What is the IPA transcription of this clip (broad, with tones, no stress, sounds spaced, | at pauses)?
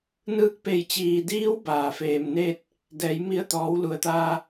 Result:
n ɯː˧ k̚ p e˧˩ j t͡ɕ iː˩ d iː˧˥ w b aː˩ f eː˩ m n eː˥˨ t̚ | d ɛː˩˧ j m i˧ ə̯ t̪ ɔː˩˧ w l u˩ ə̯ t̪ aː˧